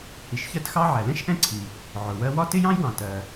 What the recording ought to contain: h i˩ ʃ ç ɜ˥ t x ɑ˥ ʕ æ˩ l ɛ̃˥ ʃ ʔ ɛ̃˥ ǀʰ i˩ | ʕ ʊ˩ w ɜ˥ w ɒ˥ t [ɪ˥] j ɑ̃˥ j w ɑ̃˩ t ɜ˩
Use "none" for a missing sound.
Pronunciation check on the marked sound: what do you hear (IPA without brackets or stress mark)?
ɪ˥